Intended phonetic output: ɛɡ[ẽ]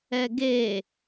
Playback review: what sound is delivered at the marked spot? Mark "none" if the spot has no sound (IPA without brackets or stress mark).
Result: e